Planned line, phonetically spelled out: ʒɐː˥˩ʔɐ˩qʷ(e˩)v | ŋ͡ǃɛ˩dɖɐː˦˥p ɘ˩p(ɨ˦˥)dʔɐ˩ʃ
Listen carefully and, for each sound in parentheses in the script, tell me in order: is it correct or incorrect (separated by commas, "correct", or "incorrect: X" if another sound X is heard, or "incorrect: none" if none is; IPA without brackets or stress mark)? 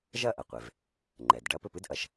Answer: correct, correct